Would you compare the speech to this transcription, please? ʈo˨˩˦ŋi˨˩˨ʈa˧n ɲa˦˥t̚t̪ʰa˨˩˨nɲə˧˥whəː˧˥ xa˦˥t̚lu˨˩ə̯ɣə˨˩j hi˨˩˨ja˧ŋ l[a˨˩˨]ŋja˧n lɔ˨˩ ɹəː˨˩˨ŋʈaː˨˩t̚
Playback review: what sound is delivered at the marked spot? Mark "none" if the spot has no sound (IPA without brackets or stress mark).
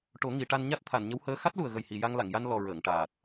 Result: a˨˩˨